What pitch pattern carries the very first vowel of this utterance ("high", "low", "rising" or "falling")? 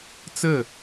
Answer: falling